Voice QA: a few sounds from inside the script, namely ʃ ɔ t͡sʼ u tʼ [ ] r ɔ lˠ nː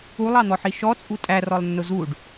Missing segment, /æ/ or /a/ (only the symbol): æ